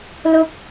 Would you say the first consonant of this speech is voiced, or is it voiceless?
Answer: voiced